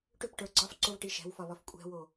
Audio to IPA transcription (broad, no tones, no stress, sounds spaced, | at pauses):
ʈ ʏ p ʈ ə˞ ɡ͡ǀ ɒ f ǀ o v ʈ i ʃ ɛ̤ w f ɒ β ɒ f kʷʼ ɛ̤ w o